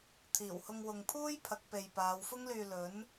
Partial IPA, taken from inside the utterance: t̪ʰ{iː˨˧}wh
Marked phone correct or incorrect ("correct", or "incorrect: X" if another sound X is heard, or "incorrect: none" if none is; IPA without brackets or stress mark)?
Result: incorrect: iː˨˩